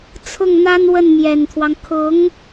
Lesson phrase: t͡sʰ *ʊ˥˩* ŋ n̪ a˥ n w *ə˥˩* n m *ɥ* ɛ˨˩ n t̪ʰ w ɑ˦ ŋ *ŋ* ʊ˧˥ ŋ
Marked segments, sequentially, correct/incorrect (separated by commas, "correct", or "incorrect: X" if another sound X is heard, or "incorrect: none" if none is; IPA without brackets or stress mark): correct, correct, incorrect: j, incorrect: kʰ